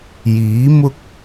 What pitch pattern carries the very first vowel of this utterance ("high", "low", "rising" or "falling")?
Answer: rising